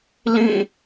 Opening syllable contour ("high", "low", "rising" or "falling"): falling